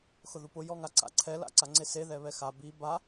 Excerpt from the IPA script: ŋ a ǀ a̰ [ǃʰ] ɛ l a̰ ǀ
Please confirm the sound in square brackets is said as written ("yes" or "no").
no